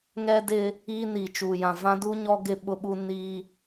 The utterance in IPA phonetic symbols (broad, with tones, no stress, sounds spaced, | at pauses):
ŋ ɛ˦ d ɪ˦ | iː˦ n iː˨ t͡ʃ uː˨ j ã˨ v ã˦ d u˦ ɲ ɔ˦ ɡ ɪ˦ ɓ ʊ˦ ɓ u˦ n i˦